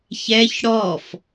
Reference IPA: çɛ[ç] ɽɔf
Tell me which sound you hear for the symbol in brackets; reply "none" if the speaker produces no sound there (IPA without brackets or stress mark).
ç